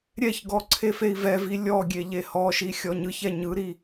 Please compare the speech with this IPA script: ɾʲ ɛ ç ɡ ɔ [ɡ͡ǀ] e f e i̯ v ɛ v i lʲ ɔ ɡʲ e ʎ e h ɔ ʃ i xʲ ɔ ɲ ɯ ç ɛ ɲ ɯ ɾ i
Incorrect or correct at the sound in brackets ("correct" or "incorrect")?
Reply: incorrect